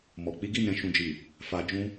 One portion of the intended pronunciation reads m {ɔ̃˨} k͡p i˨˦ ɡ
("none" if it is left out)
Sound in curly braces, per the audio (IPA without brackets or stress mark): ɔ˨